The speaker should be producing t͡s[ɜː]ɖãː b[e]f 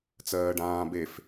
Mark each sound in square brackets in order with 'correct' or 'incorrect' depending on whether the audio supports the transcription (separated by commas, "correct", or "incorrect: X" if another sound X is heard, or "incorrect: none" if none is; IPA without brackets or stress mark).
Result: correct, correct